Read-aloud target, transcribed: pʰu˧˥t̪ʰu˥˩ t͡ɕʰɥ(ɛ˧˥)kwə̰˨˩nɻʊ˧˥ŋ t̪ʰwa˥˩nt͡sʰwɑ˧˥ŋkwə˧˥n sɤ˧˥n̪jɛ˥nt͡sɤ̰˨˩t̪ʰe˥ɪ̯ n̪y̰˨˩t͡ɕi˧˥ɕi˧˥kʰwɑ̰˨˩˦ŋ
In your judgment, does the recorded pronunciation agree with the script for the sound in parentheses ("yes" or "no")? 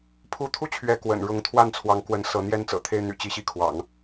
yes